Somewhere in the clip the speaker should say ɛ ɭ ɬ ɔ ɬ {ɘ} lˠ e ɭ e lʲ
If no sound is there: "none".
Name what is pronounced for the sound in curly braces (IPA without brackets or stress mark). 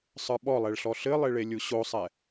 ɘ